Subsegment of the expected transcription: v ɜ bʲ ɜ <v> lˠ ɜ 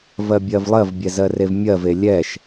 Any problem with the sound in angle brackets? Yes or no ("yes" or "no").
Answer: no